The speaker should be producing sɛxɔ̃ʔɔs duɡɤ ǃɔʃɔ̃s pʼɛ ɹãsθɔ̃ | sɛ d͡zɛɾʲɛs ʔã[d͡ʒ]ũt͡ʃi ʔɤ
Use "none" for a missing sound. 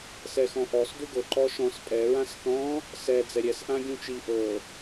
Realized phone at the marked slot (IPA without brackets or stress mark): ɡʲ